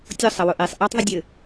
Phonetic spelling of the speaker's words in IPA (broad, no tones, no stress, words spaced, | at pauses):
tʲʊ sˤɐwʊʔesˤ ʔɑtˤ ðˤədʲɘ